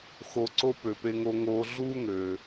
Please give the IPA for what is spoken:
xo˨ǀo˦ pø˩pe˨ŋo˨ŋoː˨ ɮuː˦ŋøː˩

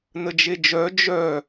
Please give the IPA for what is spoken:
nəd͡ʒed͡ʒœ d͡ʒœ

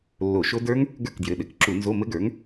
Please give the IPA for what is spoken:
lːo˧˩˧ʃo˦˥ də˞˦˥ŋ | ɡə˞˥˩kdjɘ˩˧˩ɗɘ˩˧˩k ǁu˧˩˧nzo˧˥˧mɘ˦˥ɡə˞˩˥ŋ

